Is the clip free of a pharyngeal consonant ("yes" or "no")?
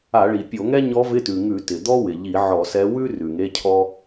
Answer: no